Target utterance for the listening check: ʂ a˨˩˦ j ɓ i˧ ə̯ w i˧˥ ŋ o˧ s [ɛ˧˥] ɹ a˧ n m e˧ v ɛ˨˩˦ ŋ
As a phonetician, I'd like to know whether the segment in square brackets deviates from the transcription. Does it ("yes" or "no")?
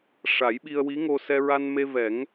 yes